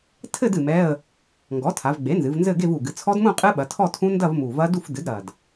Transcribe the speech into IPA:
tʰɘ˥˧d ɨ˨˩mɛ˧˥˧ə̯ | ŋɡɔ˩˥tʰa˩˧vɡ͡be˩˥nzɨ˩˧v nzɘ˥˧ɡe˥˧vu˨˩ɡɨ˩˧ t͡sʰɔ˦˥dmũ˥˧ qʼɨ˦˥ ɓɐ˩˧tʰɔ˥˧tʰũ˦˥ ndɐ˥˧vmu˨˩ vɐ˦˥du˥˧fdɨ˩˥dɾɐ˨˩d

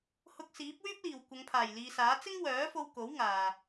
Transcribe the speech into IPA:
hʊ˧k̚siː˨˥p̚wyː˥p̚liː˨˩w kʷɐ˨˧ŋpʰaː˨˩jliː˨saː˨˥ t͡sɪ˥ŋwœː˨˥fo˧w ko˨˥wŋaː˨

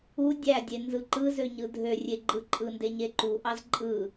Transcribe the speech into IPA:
u dʲædʲe nzɯǃɯzø ɲɯdʱørʲe ɡ͡ǃɯǃʼɯnde ɲeǃuʔɑz ǃʼɯ

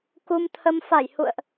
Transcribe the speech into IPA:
ku˧mt̪ʰə˧m fa˧˩j hṵ˧˨ə̯ʔ

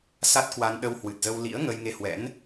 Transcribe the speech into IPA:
sa˦˥t̚kwa˧n ɗə˧whwɨ˨˩t̚zə˧wlḭ˧˥ə̯ ŋə˧jŋe˧hwɛ̰˧˥n

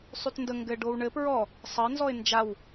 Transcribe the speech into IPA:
sˤytndə ŋɡɘ ɖowɳɘ pɹɔ | sˤɘɪ̯ nzɔɪ̯nd͡ʒaw

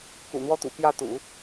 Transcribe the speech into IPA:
kṵ˨˩n̪wɔ˥t̪ṵ˨˩ pjä˥˩t̪ṵ˨˩˦

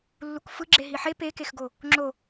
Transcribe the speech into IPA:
lːukfɯɡ͡ǁe ɦiħe pekexɡo | ŋ͡ǁo

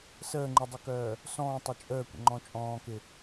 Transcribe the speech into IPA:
səː ŋ͡ǃɪdˤɪkœː | sɔ̃ːtˤə t͡ʃʼəːkʷə̰ŋ͡ǃɔ̃ t͡ʃʼɔ̃ːkɪ

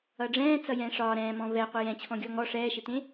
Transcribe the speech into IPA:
ʌɖ͡ʐɛ̃ː t͡sʌjɛ̃ːʂɒː ɾɛ̃ːmɔ̃ vɛ qʷɛjɛ̃t͡ɕʰɔ̃ ɡʲɔŋɔ ʂɛːʃɪt̪ẽ

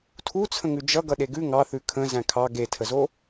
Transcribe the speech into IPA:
tʰut͡sʰə̃ŋʉ d͡ʒʌ ɡʌɗeɡʉ ŋɑθʉ kʰə̃ zæ̃kʰɑ ɡetʰəzo

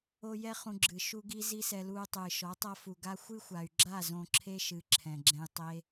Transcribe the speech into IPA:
o˧ jɛ˧ χũ˧ɡ͡ǁɨ˨ ʃu˧ɡi˧ zi˦sɛ˧luː˧ tˤɨː˨ʃɔ˨˦tˤa˦ fu˨ɡa˦ xʷɨ˦xʷa˨y̯ɡ͡ǁa˦˨ zõ˧ ǁʰe˦ʃɨ˨˦ ǁʰɛ̃˨ɡ͡ǁɛ̃˧j tˤe˦

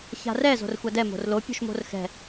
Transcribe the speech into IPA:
ça̤rɛ zo̤rxʷadɛ mo̤rlo pʲo̤ʃmo̤rxɛ̤

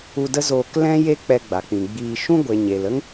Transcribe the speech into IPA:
u˧də˦zoː˧k lɛ̃˦ je˦k͡pɛ˧ɡ͡ba˨k͡pĩ˨ ɡ͡biː˧ ʃũ˦ ɡʷe˨ɲe˨lə˦ŋ

